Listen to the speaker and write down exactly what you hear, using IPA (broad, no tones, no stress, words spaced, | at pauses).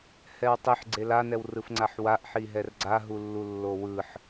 hɛwtˤiħ ɡ͡ǀelanɛwrɯf ŋ͡ǀaħwaʔħi ɦɛrɡ͡ǀaɦulːu lːowɯħ